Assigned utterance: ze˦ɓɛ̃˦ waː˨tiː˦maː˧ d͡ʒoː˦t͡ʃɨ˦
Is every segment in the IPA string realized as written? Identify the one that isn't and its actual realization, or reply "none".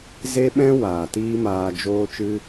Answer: none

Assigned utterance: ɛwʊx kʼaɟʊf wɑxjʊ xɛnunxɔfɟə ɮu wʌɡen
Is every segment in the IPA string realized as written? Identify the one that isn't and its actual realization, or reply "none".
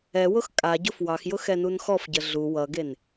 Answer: none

